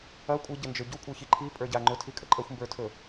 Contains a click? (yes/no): yes